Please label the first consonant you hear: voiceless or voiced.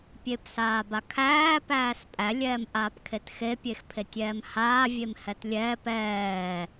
voiceless